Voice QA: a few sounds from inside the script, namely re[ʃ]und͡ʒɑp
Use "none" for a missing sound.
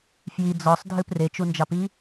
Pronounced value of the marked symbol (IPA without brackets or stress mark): t͡ʃ